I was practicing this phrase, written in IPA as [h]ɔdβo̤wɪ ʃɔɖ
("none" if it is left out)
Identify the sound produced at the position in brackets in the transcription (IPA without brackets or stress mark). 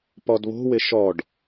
p